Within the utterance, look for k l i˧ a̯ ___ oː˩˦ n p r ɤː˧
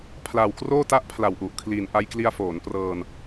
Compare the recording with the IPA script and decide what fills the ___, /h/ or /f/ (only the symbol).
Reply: f